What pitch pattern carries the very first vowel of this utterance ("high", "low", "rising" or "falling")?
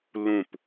falling